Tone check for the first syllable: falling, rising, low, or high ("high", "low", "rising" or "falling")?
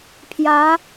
rising